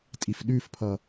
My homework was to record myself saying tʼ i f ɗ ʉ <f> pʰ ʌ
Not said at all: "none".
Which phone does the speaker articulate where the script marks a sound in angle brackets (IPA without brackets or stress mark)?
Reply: f